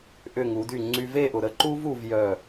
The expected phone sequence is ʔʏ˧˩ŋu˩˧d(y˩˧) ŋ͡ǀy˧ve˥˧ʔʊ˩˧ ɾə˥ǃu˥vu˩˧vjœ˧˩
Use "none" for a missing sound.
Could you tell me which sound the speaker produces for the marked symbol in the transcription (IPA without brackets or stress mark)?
y˧˩